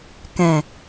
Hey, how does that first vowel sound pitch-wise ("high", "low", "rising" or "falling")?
low